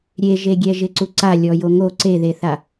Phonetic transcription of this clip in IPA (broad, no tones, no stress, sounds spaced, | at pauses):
ɾʲ e ʒ e ɡʲ ɛ ʒ ɪ ǀ u ǀ a lʲ ɔ j o ŋ o ǀ e ð e θ a